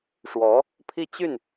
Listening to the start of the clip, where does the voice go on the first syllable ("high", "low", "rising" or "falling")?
rising